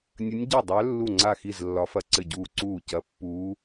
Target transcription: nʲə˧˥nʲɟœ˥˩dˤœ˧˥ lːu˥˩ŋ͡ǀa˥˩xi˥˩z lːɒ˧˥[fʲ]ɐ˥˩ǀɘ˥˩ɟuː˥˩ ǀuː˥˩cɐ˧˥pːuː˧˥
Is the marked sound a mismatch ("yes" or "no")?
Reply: yes